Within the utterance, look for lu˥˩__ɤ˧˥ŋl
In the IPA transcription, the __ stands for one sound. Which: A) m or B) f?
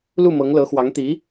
A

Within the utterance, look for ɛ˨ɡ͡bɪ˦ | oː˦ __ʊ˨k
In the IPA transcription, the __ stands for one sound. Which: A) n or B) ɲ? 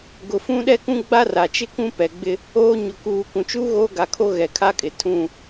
B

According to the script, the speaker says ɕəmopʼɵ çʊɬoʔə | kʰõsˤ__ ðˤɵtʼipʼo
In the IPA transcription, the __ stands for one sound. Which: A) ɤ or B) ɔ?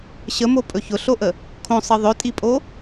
A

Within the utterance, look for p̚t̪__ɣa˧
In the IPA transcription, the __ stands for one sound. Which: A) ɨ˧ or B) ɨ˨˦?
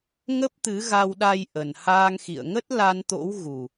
B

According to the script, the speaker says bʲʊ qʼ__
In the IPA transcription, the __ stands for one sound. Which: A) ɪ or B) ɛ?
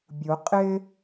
A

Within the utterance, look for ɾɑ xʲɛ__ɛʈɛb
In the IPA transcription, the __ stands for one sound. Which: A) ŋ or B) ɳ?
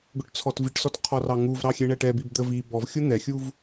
B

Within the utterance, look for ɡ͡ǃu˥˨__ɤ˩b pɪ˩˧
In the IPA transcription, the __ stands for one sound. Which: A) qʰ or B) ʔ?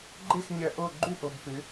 B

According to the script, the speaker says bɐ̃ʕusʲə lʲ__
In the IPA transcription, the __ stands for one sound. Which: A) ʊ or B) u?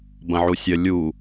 B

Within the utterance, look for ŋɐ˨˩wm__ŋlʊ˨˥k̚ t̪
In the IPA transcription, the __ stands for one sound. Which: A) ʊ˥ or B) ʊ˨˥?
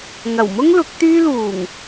A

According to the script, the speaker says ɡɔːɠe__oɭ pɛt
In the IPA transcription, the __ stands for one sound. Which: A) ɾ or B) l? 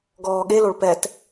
B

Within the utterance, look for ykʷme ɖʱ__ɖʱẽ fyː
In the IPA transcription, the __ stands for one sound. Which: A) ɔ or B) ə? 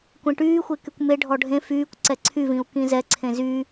A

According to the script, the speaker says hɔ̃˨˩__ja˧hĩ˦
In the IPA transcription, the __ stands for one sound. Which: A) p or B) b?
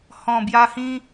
B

